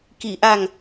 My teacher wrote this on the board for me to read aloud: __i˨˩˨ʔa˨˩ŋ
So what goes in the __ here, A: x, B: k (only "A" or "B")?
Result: B